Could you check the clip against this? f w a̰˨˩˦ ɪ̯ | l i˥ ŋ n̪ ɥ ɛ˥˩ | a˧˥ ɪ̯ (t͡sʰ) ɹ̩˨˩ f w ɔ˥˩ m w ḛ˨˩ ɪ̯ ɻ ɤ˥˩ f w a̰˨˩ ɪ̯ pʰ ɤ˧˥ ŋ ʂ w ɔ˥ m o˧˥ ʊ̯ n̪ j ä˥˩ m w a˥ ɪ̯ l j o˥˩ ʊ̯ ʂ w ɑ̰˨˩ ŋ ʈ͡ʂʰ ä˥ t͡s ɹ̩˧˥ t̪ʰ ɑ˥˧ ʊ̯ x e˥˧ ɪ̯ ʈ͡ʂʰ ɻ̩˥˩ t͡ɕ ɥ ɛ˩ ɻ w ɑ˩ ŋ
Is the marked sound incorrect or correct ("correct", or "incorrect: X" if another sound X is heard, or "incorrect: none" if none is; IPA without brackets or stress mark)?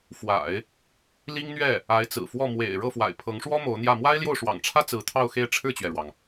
incorrect: t͡s